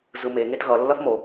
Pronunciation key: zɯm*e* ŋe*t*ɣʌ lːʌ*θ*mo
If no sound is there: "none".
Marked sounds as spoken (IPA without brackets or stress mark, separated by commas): e, t, θ